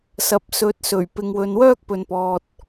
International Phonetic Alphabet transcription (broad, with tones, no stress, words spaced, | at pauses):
sɐ˨˥p̚sɵ˨˥t̚sɵ˨˩ɥ pɪ˨ŋwɵ˨n wœː˥k̚pɵ˨npɔː˨t̚